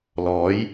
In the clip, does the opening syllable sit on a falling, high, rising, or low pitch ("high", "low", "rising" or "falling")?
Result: rising